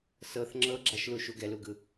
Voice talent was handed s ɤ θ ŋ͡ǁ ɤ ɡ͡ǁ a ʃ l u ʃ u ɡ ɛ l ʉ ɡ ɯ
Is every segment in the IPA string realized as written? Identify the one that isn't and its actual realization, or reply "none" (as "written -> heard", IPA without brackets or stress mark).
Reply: ʉ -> u